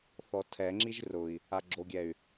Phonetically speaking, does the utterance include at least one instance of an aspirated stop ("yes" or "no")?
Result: yes